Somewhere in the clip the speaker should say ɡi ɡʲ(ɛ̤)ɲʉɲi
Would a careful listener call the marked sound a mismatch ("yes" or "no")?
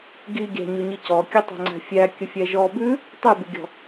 yes